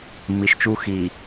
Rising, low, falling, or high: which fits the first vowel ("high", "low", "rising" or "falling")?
low